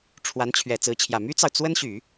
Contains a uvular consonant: no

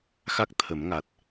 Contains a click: no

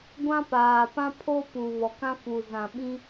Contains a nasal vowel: yes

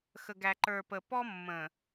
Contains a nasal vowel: yes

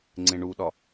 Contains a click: yes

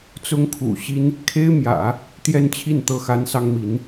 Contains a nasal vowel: no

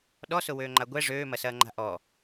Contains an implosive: yes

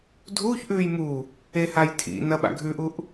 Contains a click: no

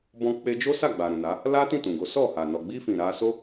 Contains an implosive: no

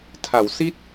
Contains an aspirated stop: yes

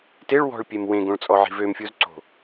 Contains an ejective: yes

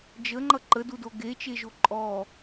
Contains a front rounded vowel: no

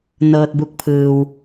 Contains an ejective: no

